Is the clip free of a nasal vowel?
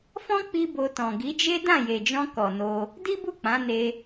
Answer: no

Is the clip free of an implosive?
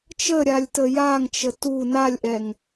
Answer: yes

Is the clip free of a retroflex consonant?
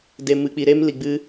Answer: yes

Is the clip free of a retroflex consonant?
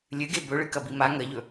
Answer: no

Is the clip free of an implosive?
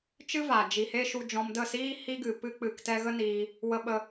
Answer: no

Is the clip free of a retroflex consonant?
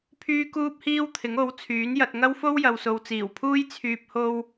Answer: yes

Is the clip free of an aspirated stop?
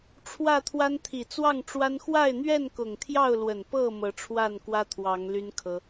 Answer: no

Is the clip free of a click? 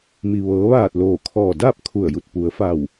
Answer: yes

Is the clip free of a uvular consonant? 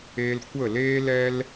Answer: yes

